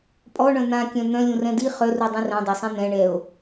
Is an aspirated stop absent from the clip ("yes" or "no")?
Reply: yes